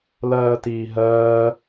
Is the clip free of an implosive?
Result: yes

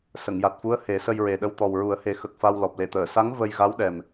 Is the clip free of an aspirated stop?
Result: yes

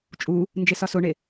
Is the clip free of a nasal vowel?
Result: yes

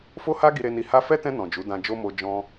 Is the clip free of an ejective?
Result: yes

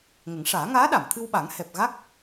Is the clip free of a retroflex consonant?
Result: no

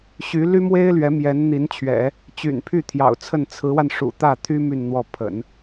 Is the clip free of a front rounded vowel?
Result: no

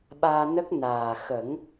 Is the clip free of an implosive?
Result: no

